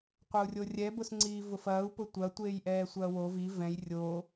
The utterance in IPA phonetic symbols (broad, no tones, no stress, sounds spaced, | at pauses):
qʷ ɐ u̯ rʲ o rʲ ɛ b ʊ s ŋ͡ǀ iː v ʊ f ɐː u̯ p ʊ tʷ ɐ tʷ eː j ʔ ɛː sʷ ɐː w o v i v ɛ̃ j rʲ o